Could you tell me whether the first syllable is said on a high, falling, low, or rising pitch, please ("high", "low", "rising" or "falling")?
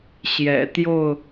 low